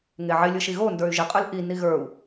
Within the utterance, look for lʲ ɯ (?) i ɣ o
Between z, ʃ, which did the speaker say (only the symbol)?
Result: ʃ